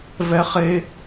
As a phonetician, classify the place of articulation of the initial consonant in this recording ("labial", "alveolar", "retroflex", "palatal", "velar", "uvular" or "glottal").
labial